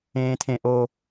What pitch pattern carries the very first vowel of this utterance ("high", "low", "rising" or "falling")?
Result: low